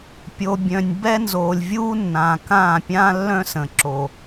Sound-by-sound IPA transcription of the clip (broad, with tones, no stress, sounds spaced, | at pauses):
pʲ o˨ bʲ œ̃˨ nʲ b ɛ˦ n z oː˨ lʲ vʲ uː˦ nː ã˨ k ãː˦˨ pʲ ã˦ lː œ̃˦ s ə̃˨ ǁ o˨